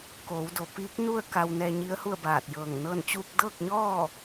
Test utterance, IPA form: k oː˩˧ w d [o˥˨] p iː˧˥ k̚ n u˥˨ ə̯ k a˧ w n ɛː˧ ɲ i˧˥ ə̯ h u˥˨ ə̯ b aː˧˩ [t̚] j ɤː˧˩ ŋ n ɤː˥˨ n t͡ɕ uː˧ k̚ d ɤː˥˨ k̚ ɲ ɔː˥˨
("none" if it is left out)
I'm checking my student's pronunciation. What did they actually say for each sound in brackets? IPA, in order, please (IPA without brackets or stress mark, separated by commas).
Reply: o˩, t̚